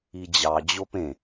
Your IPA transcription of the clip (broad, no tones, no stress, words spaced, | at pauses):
id͡ʑɑ d͡ʑopẽ